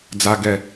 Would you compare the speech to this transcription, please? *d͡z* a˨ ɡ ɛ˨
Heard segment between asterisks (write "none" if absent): d͡z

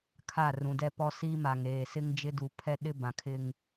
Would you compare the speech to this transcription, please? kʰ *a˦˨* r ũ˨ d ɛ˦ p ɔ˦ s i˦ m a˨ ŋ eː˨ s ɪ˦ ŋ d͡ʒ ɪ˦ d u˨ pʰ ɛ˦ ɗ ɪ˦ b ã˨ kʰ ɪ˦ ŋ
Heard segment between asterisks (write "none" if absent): a˦˨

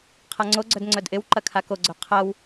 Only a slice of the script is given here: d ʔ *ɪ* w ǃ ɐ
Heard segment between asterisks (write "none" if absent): ɪ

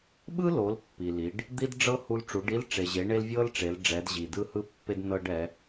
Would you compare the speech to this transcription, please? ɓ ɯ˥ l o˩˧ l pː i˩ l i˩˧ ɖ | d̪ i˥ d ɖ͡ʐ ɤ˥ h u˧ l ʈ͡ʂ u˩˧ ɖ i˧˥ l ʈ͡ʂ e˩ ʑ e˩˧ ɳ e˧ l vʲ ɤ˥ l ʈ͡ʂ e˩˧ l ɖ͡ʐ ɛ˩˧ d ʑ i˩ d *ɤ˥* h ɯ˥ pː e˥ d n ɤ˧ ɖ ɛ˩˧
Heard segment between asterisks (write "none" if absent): ɯ˥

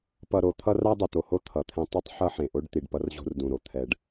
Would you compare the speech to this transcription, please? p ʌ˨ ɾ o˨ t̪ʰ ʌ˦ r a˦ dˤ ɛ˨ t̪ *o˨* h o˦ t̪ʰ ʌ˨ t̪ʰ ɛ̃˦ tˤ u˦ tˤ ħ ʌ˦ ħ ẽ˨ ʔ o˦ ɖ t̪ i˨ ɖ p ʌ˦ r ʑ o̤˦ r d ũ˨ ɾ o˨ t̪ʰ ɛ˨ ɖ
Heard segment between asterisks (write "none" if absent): o˨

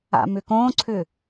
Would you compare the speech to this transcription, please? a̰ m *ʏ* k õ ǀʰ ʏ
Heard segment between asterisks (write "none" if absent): ʏ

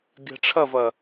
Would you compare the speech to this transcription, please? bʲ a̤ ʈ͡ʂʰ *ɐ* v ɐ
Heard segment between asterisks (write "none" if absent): ɐ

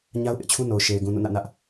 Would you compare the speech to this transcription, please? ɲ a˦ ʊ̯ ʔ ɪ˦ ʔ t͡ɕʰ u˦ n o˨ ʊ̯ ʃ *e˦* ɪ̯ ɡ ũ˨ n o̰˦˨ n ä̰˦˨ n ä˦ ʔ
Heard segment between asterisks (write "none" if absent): e˨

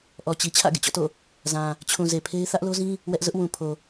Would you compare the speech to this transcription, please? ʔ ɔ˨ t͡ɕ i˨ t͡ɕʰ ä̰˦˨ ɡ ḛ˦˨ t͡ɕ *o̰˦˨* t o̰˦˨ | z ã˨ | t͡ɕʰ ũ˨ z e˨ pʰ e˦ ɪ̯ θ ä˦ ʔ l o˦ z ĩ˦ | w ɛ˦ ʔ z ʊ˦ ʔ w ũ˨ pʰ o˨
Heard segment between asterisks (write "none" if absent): ɔ̰˦˨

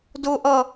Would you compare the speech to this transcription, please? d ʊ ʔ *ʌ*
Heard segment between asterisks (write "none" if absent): ʌ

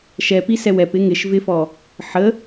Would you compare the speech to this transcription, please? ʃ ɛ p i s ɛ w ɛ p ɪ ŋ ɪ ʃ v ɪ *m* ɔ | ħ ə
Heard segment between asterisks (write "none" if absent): f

